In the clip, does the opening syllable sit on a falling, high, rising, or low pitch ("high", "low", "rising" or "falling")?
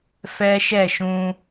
high